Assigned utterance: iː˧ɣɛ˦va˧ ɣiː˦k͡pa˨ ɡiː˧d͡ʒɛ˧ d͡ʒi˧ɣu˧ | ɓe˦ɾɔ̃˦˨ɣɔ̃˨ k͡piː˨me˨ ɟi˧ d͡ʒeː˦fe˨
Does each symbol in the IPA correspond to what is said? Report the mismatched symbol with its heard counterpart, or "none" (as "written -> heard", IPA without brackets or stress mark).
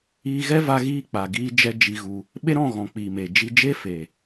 ɟ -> d͡ʒ